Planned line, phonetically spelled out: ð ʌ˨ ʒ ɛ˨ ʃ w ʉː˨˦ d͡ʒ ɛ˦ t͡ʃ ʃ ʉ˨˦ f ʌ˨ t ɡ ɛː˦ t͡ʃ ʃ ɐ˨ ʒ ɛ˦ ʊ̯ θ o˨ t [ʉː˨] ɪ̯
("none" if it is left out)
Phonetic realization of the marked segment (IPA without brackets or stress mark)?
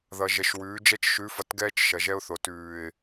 ʉː˨